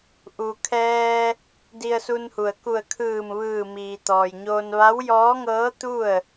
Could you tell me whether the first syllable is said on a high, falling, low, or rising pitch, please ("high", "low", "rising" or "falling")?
low